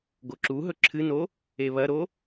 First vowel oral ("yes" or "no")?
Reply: yes